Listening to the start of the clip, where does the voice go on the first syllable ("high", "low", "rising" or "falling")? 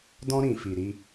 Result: high